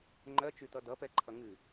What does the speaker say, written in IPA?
ŋ͡ǃɜt͡ʃy tʌdʌpɛǃʰʌ ŋɨ

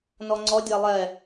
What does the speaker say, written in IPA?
nɔŋ͡ǀɔ dʲalˠɛ

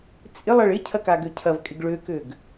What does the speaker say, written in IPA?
t͡sʼɪ lˠɐɭɪcʰɐ kaɡøcʰɐvkʼɪɡ ɭøkøɡ

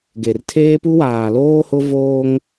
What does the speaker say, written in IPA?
ɡe˨rtʰeː˦pu˦ waː˨loː˦hʊ˦ voː˦ŋ

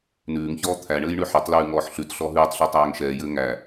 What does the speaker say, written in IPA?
nʉːŋçɔː t̪ʰæɳɘːj ɳʉħɘtˤlʉː ŋɔːħɬʉtɬɔ ɦʉːtˤɬɔ tˤæːŋʃɛːjɘː ŋæ

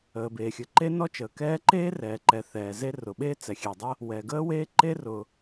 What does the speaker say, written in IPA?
əː˩beː˩xʲɘ˩ ǃe˥nɔ˥t͡ʃəː˩ kɛː˥ ǃeː˥rɛː˩ǃɛ˩ θɛː˩ze˥ rʊ˩ɓeː˥ t͡sɛ˩xʲe˩dˤə˥ | wɛ˩ɡəː˥weː˥ ǃe˥rʊ˩

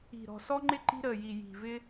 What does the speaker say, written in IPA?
i̤˨˩ ɾɔ̤˨˩sɔ˥ŋ͡ǃɪ˥ ǃi̤˥ɾəː˨˩ji˨˩ ji̤˨˩vɪ˥

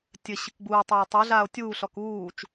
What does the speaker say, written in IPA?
tʲɘ ɕɨkɡ͡buːtˤeː tˤoɮaːo̯ tʲuːɬɔk uːt͡ʃ

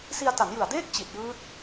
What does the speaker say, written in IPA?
si˧a̯ta˩˦njɯ˨˩a̯deː˥˩k̚ t͡ɕi˨˩t̚jɯː˦˥t̚

